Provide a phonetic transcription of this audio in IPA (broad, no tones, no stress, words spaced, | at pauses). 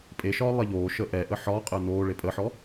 pʼeʃɒː lˠeʎoːʃəː ʔɛʔə ħɒːqʼəː noːɭe pʼəħɔ